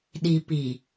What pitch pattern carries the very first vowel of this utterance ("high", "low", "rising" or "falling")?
low